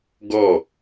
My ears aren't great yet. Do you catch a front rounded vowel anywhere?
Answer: no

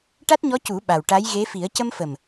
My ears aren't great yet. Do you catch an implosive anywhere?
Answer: yes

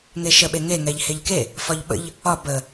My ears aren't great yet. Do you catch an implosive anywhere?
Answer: yes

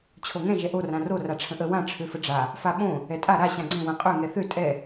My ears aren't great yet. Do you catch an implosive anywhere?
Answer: yes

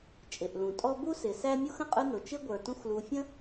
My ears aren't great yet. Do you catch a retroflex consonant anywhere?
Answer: no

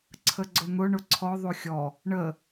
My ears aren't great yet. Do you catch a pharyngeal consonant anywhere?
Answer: no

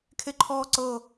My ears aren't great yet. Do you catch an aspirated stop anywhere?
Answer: yes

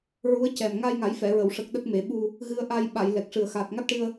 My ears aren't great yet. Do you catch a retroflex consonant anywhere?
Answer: yes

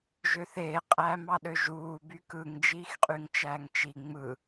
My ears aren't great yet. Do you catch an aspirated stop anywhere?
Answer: no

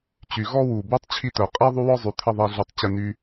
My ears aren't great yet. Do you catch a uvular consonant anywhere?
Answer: yes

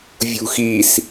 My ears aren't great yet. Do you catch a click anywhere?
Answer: no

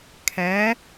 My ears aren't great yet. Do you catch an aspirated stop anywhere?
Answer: yes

